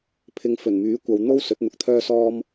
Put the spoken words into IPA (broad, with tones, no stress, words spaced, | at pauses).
pʰɪ˨ŋ fɵ˨˩nmyː˨˥kʷɐ˨˧w n̪o˥w sɵ˨˥t̚n̪ʊ˨˥k̚t̪ʰœː˥sɔː˥m